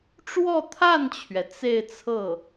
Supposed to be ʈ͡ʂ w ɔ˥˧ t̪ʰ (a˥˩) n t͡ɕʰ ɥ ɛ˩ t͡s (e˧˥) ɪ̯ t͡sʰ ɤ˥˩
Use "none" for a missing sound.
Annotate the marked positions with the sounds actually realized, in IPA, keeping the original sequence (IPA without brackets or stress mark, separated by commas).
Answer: a˥˩, e˥˧